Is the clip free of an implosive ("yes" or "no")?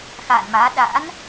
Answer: no